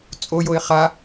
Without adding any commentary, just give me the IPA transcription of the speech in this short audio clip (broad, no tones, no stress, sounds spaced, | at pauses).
t͡sʼ o j o ɪ̯ χ a